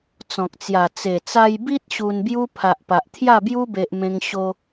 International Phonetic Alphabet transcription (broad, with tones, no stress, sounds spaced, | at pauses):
t͡s ɔ̃˨ k̚ t͡s j a˨˩ t͡s e˨˩ t͡s a˧ j b i˦ t̚ ɕ u˧ n b j u˦ pʰ a˨ ʔ p a˨ ʔ t̪ʰ j a˥˧ b j u˦ b e˦ ʔ m ẽ˦ ŋ ɕ o˦